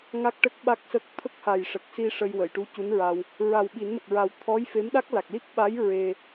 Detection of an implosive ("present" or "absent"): present